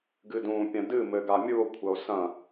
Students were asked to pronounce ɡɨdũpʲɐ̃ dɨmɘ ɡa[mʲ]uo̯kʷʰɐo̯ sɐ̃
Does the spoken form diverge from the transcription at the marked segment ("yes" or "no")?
no